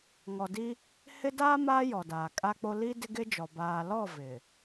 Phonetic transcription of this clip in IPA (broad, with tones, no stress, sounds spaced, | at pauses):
ŋ ɔ˨ d i˦ | h ɪ˦ d aː˦ m aː˦ j ɔ˨ d aː˨ kʼ a˦ k͡p o˦ l i˦ d ɪ˦ ɡ ɪ˦ d͡ʒ ɔ˨ b aː˨ l ɔ˦˨ v ɪ˨